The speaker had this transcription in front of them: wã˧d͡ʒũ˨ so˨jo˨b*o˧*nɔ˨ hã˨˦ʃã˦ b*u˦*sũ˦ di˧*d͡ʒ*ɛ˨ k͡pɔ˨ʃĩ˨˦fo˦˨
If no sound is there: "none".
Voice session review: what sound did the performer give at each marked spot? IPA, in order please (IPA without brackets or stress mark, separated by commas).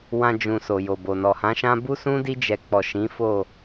o˨, u˦, d͡ʒ